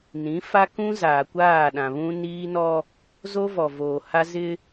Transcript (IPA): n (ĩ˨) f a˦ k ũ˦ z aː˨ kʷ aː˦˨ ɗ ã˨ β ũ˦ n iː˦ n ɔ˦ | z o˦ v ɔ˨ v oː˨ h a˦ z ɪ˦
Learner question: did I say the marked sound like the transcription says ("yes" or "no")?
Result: no